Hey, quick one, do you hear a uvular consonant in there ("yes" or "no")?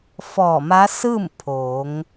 no